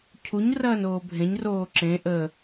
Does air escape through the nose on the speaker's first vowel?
no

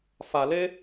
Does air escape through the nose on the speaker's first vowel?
no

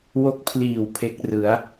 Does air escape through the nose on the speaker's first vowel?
no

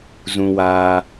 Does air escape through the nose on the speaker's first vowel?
yes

